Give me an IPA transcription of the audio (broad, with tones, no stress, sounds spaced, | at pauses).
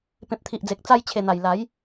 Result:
p ẽ˨ p̚ t̪ʰ i˨ ʔ d͡z e˨ k̚ t͡s a˧ j t͡ɕʰ e˨˩ n̪ a˨˩ j l a˨˦ j